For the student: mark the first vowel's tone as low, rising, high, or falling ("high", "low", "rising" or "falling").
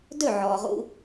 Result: falling